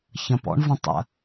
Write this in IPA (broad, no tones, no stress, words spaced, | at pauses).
çɐ̃pɔ̰ɳ və̃tˤə̰